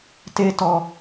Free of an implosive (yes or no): yes